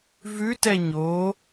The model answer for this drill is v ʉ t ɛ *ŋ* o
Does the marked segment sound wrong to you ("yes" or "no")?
yes